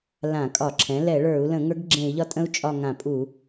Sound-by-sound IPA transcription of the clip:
lã˧˩˧kʼɒ˧˩˧ǁʰɛ̃˩˥ lɛ˧˩˧ɭə˞˧˩˧u̯lə̃˧˩˧ ŋə˞˧˥ɡɡ͡ǁẽ˧˩˧i̯ʎɒ˧˥tʼə̃˧˥u̯ t͡ʃʼɒ˦˨ŋã˧˩˧pʼu˧˩˧

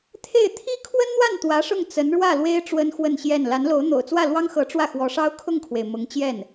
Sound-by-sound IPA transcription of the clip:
t̪ʰe˥˩ɪ̯ t̪ʰi˥kʰwə˥nn̪wa˥˩n t̪wä˧˥ʂʊ˥˩ŋ t͡sə˧˥nɻwä˥˩lwe˥ɪ̯ ʈ͡ʂwə˥nxwə˥˧nɕjɛ˥˩n la˧˥nlo˧˥ʊ̯ n̪o̰˨˩ʊ̯t͡swä˥˩lwɑ˥ŋxɤ˧˥ ʈ͡ʂwä˥˩xwɔ˧˥ʂɑ˥ʊ̯ kʰʊ˥˩ŋkʰwe˩ɪ̯ mʊ˧˥ŋt͡ɕjɛ˥˩n

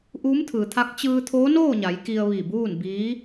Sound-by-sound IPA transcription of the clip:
ʔuː˧˥mt̪ʰɯː˩t̪ʰa˧˥k̚ t͡ɕɯː˧t̪ʰoː˧˥noː˥˨ɲa˩˧j ki˧ə̯ʋi˧˩buː˥˨n biː˧˥

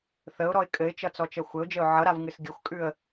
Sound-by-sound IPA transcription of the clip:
θəʊ̯ɾɔɪ̯ kʼɘɪ̯t͡ʃʌt͡sɔt͡ʃʌ xʷɘʊ̯d͡ʒəʊ̯ ʕʌɾavŋɨs ɡʲəxʷkʼʉə̯

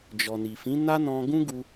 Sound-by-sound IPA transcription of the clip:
d͡ʒɔ˨ni˨fĩ˨˦ na˦nɔ̃˧ɡũ˦ɡu˧

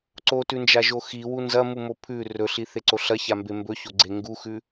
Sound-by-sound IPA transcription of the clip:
ǀotʉnd͡ʒaʒo xiwu nzɐmumo pʰʉ rɵɬiθeǀo ɬɐçambe mbɵçoɡ͡ǀe ŋɡuxʉ

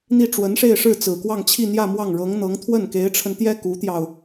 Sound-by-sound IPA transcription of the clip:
n̪i˥˩ʈ͡ʂwə˧˥nʂe˥˧ɪ̯ʂɻ̩˥˩ t͡sɹ̩˨˩kwɑ˥˧ŋt͡ɕʰi˥˧n̪jä˥˧ mwɑ˥˩ŋɻɤ˧˥ŋn̪ɤ˧˥ŋ t̪ʰwə˥˩nke˧˥ɪ̯ʈ͡ʂʰə˧nt̪jɛ˥ ku˧˥t̪jɑ˧ʊ̯

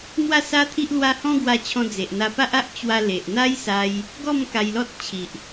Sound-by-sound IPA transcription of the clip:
n̪wa˥˧sa˦t̪ʰi˦ʔ lwa˦ hɔ̃˦ ɡwa˧t͡ɕʰɔ̃˧ d͡ze˨ʔn̪a˧pa˦ʔa˦ʔ t͡ɕwa˧le˨ʔn̪a˦jsa˧j | ɡɔ˥˧m ka˧jlɔ˦t̚ t͡ɕʰi˨ʔ

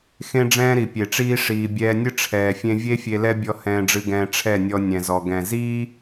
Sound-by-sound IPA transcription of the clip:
xẽ˦ɖ͡ʐɛ̃ː˦ ɾi˨pʲe˨ʈ͡ʂiː˦ ʂiː˧ bʲɛː˧nʲɨ˦ ʈ͡ʂʰɛː˨fʲẽ˧vʲe˦ fʲe˧lɛ˦bʲɔ˧ hɛ̃ː˧ɖ͡ʐɨ˧ɡɛ̃ː˧ ʈ͡ʂʰɛ˦˨nʲɔ˧ nʲɛ̃˨zɔ˨ ɡɛ̃˨ziː˦

